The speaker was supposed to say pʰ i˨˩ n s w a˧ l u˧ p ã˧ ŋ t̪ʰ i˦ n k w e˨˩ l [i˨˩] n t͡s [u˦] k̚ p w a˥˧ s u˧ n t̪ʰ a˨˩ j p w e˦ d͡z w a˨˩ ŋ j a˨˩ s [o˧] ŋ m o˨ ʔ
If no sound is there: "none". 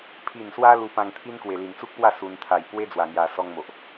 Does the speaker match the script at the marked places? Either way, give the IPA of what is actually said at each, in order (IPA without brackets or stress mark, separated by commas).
i˨˩, u˦, ɔ˧